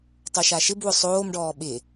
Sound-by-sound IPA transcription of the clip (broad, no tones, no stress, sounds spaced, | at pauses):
tˤ o ʃ a ʃ ɪ b w ʊ sˤ oː m ɖ ɔː ɓ ɪ